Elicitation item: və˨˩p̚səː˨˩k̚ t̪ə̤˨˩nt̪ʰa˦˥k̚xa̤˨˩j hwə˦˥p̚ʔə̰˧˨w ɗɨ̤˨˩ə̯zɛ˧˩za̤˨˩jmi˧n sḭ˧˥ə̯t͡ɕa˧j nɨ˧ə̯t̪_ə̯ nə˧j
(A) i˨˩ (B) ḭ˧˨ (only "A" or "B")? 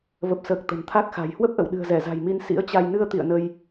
B